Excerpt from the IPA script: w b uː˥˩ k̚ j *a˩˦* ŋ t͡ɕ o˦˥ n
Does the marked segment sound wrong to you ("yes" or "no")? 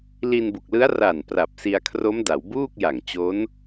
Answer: yes